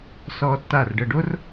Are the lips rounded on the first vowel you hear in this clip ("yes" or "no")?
yes